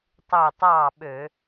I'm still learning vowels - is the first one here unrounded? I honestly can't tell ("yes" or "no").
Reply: no